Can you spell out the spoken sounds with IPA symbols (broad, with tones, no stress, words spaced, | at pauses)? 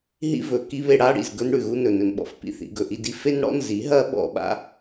ɦḭ˦vɵ˨ ki˦βe˧ ɽa˦ ɽḭ˨z ɡɵ˦nɽʉ˨ɣu˦nɵ˨ nɵ˨nɓɔ̰˨f pḭ˧θḭ˧ɡɵ˨ ʔi˦di˧ fe˦nɽɔ̰˦nzi˨˦ ɦɐ˦ɓɔ̰˧ɓa̰˦